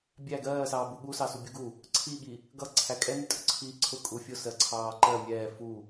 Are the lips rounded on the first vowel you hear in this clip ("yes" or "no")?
no